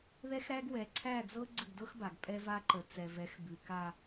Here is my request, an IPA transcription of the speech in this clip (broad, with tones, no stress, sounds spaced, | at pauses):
ð ɛ˦ x ɾ æ˦ ɡ w ɛ˨ ǀʰ æ˦˨ d͡z ɤ˦ ɡ͡ǀ ə˦˨ ɡ d ɤ˦ x b a˨ ɡ pʼ ɛ˦ v a˦ ǃ ə˨ t͡s ɛ˨ v ɛ˨˦ x b ʉ˨ k a˦